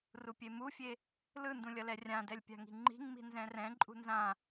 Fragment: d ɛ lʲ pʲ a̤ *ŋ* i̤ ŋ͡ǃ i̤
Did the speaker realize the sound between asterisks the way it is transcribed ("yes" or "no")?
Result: yes